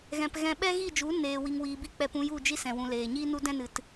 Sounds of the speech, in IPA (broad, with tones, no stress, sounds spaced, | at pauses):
ɣ ɛ̃˨ p ɣ ɛ̃˧ ɓ ɛ˦ ɣ i˦˨ d͡ʒ u˨˦ n eː˨ w i˨ ŋ w iː˨ b i˦ k͡p ɛ˧ p ũ˧ j u˦˨ d͡ʒ i˦ s ɛ̃˨ w ũ˨ l eː˨ ɲ iː˦ n u˦ d ɛ̃˦ n ɨ˨ t